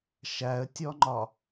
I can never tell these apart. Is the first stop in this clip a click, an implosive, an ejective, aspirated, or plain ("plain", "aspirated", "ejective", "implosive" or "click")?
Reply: plain